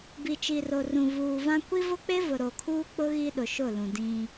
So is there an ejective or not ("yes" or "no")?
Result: no